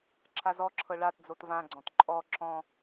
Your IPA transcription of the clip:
ǁʰ a z ɔ ǁʰ ɤ ɭ a t d͡z o t v ã ɡ͡ǀ ɔ̃ t ǃʼ ɔ ǁ ɔ̃

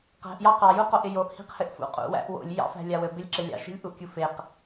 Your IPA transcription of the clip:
q æ̤ ʔ j ɑ q ɑ j u q o ʔ ɪ j o ʔ h i̤ q h ɘ ʔ f ṵ qʼ ṵ w æ̰ ʔ w o̰ lʲ j ɑ̰ f æ̤ lʲ a w ɘ b ɪ lʲ ǁ ɘ lʲ ɑ̰ ʃ i̤ lʲ ʔ u ʔ kʲ u f e q

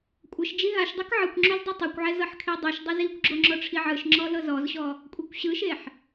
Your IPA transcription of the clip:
kʷʼ ɤ ʃ d͡ʒ i ɦ a ʃ dˤ o k ʕ ɯ kʷ ŋ͡ǁ u z dˤ i tˤ ɤ kʷ ʕ ɛ z ɤ ħ kʰ e dˤ u ʃ dˤ e z i kʷ ɡ͡ǁ o ŋ͡ǁ ɔ ʈ͡ʂʰ i ʕ ɯ ʃ ŋ͡ǁ ɔ l ɤ z ɔ z ɕ ɔ | kʷʼ e kʷ ɕ ɯ ʃ e ħ

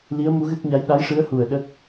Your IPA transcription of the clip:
l i˧˥ ə̯ m u˧˥ ɣ ɨ˦˥ k̚ ɲ a˧˥ j ɗ a˧˥ j ʂ ɨ˧˥ ə̯ h u˨˩ ə̯ ɗ ə˦˥ k̚

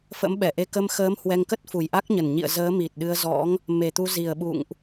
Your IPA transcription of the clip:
f ə̰˧˥ m ɓ ɛ˧˩ ʔ e˧ k ə˧ m x əː˨˦ m h w ɛ˧ ŋ k ə˦˥ t̚ f u˨˩ j ʔ a˦˥ k̚ ɲ ə˨˩ n ɲ ḭ˧˨ ə̯ z əː˨˦ m i˨˩ t̚ ɗ ɨ˧ ə̯ z ɔ̰˧˥ ŋ | m e˨˩ t̪ u˧ z i˨˩ ə̯ ɓ ṵ˧˨ ŋ ʔ

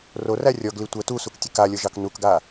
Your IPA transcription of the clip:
r o r æ rʲ ɔ ɡ l i tʷ ə t u s u k tʲ ə k a lʲ ɤ ʒ ɑ k n u k ɡ a

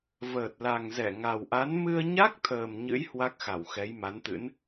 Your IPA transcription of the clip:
v əː˨˩ t̚ l a˨˩ ŋ z ɛ˧˩ ŋ a˨˩ w ʔ a˨˦ n m ɨ˧ ə̯ ɲ a˦˥ k̚ t̪ʰ əː˨˩ m ɲ ɨ̰˧˥ j h w a˦˥ k̚ x a˧˩ w x ɛ˨˦ j m a˨˦ n t̪ ɨ̰˧˥ n

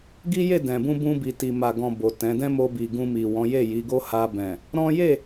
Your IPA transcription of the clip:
ɡ i˦ j e˦˨ d ɛ̃˨ b ũ˧ b ũ˧ b i˨ t i˨ m a˨ ɡ ɔ̃˨ b o˨ t ɛ̃˨˦ d ɛ̃˦ m o˧ b i˨ ɡ ũ˧ m i˨ w ɔ̃˨˦ j e˦˨ j i˨˦ ɡ o˦ h a˧ b ɛ̃˨ | ɾ ɔ̃˦ j e˦˨

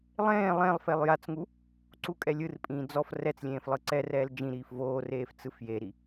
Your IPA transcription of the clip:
lˠ ẽː lˠ ẽ lˠ f e lˠ j a t͡s ŋ u | ǀ u kʼ ɛ lʲ ɯ r pʼ ĩː d͡z ɔ f r ɛ t͡s lʲ ẽː f lˠ ɯ ǀ ɛ r ɛː l d͡ʒ ĩ ɾ iː f v oː r eː f t͡s ɯ f j e ɾ i

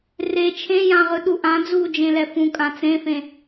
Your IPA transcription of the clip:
r e t͡ʃʰ ẽ j ã ʁ ɯ ɗ u ʔ ã d͡z uː d͡ʒ ẽ l ɛ f ũ kʼ ã t͡s ẽ f ẽ

